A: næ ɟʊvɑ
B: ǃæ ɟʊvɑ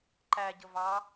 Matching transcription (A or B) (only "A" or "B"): B